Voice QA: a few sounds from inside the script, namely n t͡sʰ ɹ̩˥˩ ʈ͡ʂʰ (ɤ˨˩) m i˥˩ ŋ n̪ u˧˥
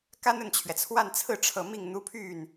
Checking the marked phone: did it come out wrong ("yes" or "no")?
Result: no